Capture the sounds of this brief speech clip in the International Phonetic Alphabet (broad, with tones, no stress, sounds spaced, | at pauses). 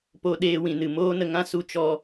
p o˧ ɗ eː˧ w ĩ˨ n ɨ˨ m oː˦ n ə˧ ŋ ã˦ s u˧ t͡ʃ ɔ˧